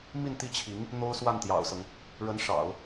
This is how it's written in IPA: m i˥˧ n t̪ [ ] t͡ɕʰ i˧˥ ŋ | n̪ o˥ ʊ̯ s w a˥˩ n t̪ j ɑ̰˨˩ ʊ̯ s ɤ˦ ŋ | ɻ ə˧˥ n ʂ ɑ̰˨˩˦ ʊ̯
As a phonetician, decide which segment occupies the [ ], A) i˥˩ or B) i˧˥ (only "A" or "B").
A